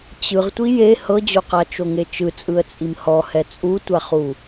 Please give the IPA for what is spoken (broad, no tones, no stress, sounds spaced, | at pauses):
t͡ɕ ɯ ʁ tʷ i j e h ɤ d͡ʑ o q a t͡ʃ o ŋ e t͡ʃ ɯ t͡sʼ ɯ ə̯ t͡sʼ i m h ɔ h ɛ t͡sʼ u tʷ a χ u